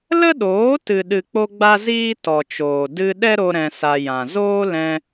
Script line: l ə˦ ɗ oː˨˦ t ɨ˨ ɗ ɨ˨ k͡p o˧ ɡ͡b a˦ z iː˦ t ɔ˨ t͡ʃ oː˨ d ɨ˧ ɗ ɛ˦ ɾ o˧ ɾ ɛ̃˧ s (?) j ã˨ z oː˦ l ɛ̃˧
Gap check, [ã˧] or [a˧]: a˧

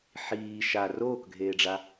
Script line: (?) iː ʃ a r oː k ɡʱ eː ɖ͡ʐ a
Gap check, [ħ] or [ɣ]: ħ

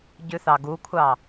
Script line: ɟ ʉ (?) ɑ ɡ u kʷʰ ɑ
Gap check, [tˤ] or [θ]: θ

